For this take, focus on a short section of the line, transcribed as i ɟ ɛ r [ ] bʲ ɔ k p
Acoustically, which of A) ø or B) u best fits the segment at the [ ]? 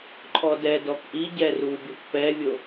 B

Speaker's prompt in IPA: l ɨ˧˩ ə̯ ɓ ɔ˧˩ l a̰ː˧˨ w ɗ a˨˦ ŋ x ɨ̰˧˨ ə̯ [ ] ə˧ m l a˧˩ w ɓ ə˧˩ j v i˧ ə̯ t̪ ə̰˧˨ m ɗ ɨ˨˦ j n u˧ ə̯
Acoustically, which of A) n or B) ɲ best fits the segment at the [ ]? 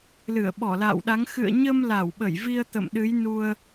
B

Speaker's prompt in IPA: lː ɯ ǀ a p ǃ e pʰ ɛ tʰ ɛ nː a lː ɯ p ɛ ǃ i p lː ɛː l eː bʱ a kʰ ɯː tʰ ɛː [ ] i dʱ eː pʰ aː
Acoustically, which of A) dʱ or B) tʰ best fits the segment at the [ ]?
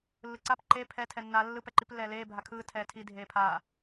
B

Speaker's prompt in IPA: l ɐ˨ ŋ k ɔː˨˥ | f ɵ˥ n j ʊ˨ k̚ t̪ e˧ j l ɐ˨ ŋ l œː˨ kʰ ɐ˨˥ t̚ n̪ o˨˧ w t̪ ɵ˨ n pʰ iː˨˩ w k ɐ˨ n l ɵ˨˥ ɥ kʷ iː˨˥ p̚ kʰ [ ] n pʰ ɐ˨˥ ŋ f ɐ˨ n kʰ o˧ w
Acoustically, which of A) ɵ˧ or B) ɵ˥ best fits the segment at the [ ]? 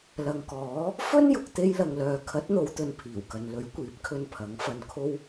A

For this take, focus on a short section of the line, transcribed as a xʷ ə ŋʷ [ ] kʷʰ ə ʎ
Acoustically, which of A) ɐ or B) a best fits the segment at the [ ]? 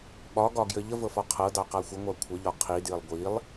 B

